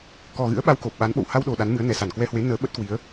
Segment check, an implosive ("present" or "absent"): present